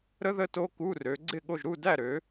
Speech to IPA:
ɾ ə˦˥ ð ə˥˨ t o˦˥ k u˧˥˧ r ø˨˦ ɡ͡ǀ ɪ˥˨ ɠ o˥˨ ʒ ɾ u˥˨ d æ˥˨ ɾ ø˨˦

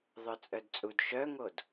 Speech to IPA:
ðˤ œ t͡sʼ œ d t͡sʼ u d ʃ œ ŋ o d

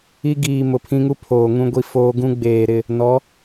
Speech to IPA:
i˦ ɡ iː˨ m ʊ˨ pʰ ĩ˦ ŋ u˦ pʰ oː˨ ŋ ũ˦ ɡʷ i˦ f oː˦ ɡ ũ˦ ɡ͡b eː˨ ɾ ɪ˦˨ | n ɔ˨˦

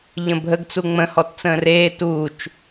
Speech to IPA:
ʎ ə̃ bʱ ə ɡ t͡s u ŋ͡m ə̃ h ɔ t t͡s ə̃ː r eː t uː t͡ʃ

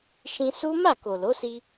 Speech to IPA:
ʃ ĩ˧ s u˦ m a˦˨ k o˨ l o˨˦ s i˧

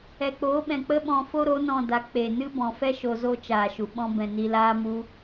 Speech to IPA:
ɛ˨ k͡p oː˨˦ ɓ ɛ̃˨ k͡p ə˦ ɓ ɔ̃˧ f o˦ ɾ o˨˦ n ɔ̃˧ d a˨˦ k͡p e˨ n ɨ˦ b ɔ̃˨ f ɛ˦ ʃ o˧ z o˦ t͡ʃ aː˨ ʃ u˨ ɓ ɔ̃˦ b ɛ̃˧ n i˧ l aː˦ m u˦

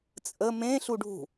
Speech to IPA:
t͡sʼ ə m ẽ ɬ u ɖʱ ṳ

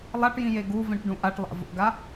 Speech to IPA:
lˠ a ʈ j ĩ j e ɡ u v ĩ ʈ ɖ ũ ʔ a ʈ lˠ a̰ v o̰ ɡ a

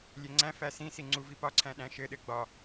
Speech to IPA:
lʲ e ŋ͡ǀ æ̃ f æ s ĩ s i ŋ͡ǀ u v i p ɒ ǀʰ æ̃ ɗ æ̃ ʃ ɘ ɗ ɘ ɡ͡b ɒ

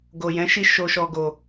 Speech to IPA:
ɡ o˨ j ɛ̃˨˦ ʃ i˧ ʃ o˨ ʃ ɔ˨ ɡ o˧

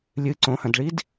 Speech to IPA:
lʲ ɨ ǀ õ h ɐ̃ d ɭ i d

